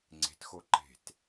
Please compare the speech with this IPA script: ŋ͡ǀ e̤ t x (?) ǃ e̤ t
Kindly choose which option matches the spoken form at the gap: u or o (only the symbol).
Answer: o